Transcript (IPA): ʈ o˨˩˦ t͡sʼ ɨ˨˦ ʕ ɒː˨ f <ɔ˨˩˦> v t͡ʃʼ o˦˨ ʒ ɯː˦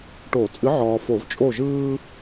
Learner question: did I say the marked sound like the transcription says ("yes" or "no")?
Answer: no